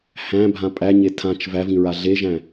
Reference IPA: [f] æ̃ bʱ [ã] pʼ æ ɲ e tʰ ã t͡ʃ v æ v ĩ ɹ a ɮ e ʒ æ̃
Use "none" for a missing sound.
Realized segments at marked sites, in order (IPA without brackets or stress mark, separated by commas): h, ã